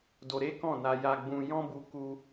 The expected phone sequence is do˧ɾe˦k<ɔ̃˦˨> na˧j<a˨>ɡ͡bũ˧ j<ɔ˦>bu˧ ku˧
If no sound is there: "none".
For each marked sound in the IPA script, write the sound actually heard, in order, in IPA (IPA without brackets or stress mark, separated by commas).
ɔ̃˦˨, a˧, ɔ̃˦